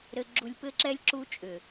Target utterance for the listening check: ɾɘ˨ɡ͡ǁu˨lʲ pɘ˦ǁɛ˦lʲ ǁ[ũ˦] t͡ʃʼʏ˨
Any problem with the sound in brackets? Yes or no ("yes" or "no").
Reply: yes